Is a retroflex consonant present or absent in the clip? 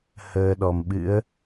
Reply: absent